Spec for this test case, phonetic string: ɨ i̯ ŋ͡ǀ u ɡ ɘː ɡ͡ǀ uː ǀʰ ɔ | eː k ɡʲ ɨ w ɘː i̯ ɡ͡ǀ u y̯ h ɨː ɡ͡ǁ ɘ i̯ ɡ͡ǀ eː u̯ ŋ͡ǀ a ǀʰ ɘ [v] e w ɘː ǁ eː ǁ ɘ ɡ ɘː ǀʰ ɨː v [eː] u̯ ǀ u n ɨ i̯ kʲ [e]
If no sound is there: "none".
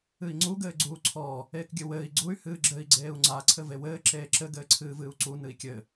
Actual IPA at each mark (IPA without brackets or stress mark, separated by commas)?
v, ɨː, ɘ